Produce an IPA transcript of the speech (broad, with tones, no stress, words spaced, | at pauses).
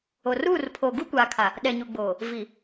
o˨ruː˦˨r pʰoː˨ɡuː˦kʷaː˨kʰa˨ | ɗɛ˨ɲu˨ɡ͡boː˨ | vi˨